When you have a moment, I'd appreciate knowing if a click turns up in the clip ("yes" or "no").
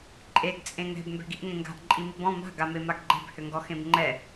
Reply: yes